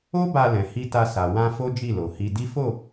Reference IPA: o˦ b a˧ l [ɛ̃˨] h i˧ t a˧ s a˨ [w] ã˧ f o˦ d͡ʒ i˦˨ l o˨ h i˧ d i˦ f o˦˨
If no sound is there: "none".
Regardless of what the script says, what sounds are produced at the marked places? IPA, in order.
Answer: ɛ̃˨, w

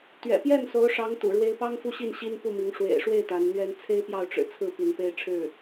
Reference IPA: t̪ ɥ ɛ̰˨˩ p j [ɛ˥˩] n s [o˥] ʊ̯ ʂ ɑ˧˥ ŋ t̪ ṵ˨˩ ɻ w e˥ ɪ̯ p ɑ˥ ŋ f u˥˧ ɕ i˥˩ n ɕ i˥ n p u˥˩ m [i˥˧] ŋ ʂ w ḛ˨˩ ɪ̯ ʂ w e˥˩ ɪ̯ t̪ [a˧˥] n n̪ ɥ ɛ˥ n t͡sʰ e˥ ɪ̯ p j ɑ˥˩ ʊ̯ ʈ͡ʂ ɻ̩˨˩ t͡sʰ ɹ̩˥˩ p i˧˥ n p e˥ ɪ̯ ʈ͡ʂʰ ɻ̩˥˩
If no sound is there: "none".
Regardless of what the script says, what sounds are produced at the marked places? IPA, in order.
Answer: ɛ˥˩, o˧˥, i˧˥, a˧˥

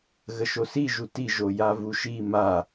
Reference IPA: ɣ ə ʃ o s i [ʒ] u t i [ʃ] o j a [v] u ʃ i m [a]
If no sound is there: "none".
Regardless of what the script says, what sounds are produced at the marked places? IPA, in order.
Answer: ʒ, ʒ, v, a

